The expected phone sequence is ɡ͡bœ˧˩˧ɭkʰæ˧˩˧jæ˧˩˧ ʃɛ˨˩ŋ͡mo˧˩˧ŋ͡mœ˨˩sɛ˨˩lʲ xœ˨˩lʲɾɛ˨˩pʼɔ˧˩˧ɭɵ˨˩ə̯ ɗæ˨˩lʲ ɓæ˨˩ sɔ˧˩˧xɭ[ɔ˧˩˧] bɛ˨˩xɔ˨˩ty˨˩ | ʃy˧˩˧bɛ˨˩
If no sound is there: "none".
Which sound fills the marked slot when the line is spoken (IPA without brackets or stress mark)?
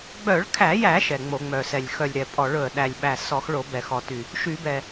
o˧˩˧